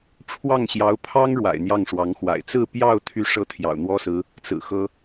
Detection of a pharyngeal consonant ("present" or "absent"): absent